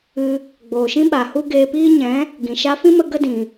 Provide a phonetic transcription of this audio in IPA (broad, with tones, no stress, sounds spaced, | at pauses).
ɨ˧ | ɡ͡b oː˨ ʃ ĩ˦ ɓ a˨ h u˦ ɡ eː˧ p iː˦ ɲ ɛ̃˨˦ | ɡ ĩ˨ ʃ a˦ f ĩ˦ m ə˧ ɡ ə˦ d ĩ˨